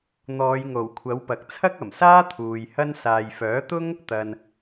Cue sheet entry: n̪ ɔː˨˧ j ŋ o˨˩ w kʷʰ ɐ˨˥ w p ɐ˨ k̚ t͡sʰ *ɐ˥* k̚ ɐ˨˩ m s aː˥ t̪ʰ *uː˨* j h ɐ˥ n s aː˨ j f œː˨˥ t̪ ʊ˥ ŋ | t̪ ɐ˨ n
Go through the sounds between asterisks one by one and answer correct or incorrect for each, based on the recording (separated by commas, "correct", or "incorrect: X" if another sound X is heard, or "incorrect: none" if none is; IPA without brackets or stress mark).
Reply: correct, correct